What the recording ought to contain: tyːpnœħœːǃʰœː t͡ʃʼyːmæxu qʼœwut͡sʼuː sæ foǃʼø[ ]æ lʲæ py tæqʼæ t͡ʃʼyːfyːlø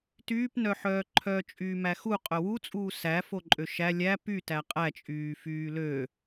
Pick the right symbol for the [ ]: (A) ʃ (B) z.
A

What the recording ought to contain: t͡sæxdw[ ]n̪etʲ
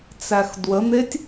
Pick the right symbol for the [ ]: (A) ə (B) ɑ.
A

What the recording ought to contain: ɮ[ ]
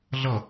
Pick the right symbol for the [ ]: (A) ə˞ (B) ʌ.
B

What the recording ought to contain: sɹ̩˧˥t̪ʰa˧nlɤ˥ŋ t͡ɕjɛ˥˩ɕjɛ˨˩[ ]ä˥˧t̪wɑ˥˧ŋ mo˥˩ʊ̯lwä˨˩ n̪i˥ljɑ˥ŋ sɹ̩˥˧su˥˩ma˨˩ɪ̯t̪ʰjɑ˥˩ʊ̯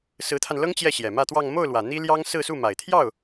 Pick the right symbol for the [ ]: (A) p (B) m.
B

